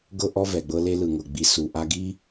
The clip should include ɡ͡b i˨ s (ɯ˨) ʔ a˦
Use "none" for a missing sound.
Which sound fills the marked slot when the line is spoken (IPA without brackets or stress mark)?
u˨